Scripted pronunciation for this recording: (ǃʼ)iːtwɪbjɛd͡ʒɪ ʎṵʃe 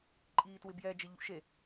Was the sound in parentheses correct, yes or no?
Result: yes